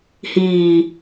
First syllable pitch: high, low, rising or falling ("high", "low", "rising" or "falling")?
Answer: low